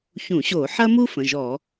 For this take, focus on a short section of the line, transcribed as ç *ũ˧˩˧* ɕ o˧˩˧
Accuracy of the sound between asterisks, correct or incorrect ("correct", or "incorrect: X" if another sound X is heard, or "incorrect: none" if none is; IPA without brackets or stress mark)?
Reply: correct